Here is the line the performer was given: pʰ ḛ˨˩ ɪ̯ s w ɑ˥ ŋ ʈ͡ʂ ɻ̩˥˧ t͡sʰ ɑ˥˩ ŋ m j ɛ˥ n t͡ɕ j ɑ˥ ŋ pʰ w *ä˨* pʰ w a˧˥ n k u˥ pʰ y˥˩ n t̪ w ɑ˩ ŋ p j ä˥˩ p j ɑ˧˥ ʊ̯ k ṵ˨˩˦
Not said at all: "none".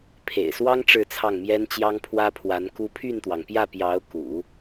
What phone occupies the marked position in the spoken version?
ä˥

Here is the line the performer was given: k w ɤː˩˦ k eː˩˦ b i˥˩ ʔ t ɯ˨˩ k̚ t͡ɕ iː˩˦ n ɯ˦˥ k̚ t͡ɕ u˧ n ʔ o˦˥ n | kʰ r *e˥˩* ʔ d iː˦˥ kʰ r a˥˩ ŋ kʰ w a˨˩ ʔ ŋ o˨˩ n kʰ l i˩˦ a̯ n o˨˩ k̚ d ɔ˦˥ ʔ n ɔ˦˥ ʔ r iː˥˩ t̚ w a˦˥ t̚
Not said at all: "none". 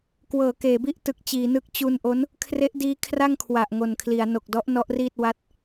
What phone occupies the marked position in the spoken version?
e˦˥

